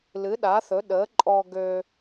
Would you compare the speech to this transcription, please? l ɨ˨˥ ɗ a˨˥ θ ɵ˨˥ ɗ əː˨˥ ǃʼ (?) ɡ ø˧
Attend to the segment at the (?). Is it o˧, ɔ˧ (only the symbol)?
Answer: ɔ˧